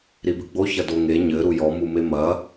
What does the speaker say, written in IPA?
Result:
ɾibɨɡ͡bo çɐdoŋe ɲɘ ɾujɔ mumemɐ

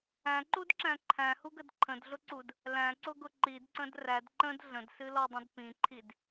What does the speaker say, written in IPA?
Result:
æ̃ǃudǁæ̃ ǃʰæ̃huɡəd ǃʰə̃dɮʊǀud | læ̃ǀʊɡʊ ǃidǀə̃d ræd ǃə̃d ɮə̃dsɨlɔdˤə̃d pĩǃʰid

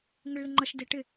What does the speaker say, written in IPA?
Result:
ŋɪɭlɪŋ͡ǃʌʃ dɪ ʈɪ

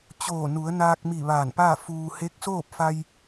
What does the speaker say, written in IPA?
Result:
t͡ɕoː˧˩nu˩˧ə̯naː˧k̚mi˧˩ ʋaː˧˩npaː˥˨fuː˧ he˧˥k̚soː˥˨p̚fa˧j

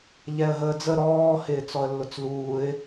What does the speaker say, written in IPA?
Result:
ʎɛə̯ɦəːd͡zə ɾɔː hɪːt͡sɔə̯lːʊt͡sluːɪ̯

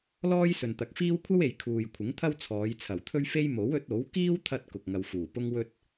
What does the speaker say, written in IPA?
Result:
lɔː˥jsɵ˨nt̪ɐ˨˥k̚fiː˥w kʷʰɐ˥we˨j kʰuː˨jkʷʰɪ˨˥ŋt̪ʰɐ˥w t͡sʰɔː˨˧jt͡sʰɐ˨˩wt̪ʰɵ˥ɥfe˥j mo˨˥wɵ˨˥t̚o˨˥w kiː˥wt̪ʰɐ˧t̚ kʊ˨k̚ŋɐ˨wfuː˨˩pʊ˥ŋ wɵ˧t̚

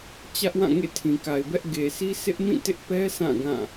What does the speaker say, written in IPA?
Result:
t͡ɕä˦ʔwã˦˨ŋḛ˦˨ tʰĩ˨ka˨ɪ̯bɛ˦ʔ ɡe˨sʰi˦ sʰɪ˦ʔmĩ˦˨tɪ˦ʔpɛ˦ sã˦˨ ɡã˦˨

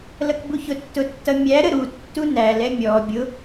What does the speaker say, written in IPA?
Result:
lʌkbuçʊ tːʊtːʌmʲæ ɾəɾu tːunæl ɛmʲɔ bʲʊ

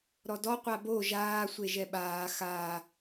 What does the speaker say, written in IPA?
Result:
ɾɔdɔ qʷabo ʒaː sʷeʒɛɓaː xa

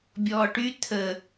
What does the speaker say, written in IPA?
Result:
bʲɔːʈy t̪ʰə

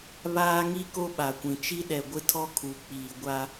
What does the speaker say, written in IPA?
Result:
βaː˦ŋi˦ ko˦ɓa˨kʷĩ˨ t͡ʃi˦ɗɛ˨ɡʷɪ˦tʰɔ˦ kʰu˨k͡piː˨ ɡʷa˦

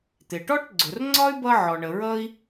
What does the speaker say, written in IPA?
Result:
t̪ɪ˩ʈɔ˥ʈɡ͡ǀʊ˩rŋ͡ǀɒ˥y̯ bʌ˥ʕɔ˩ɳə˩ɹʌ˥i̯

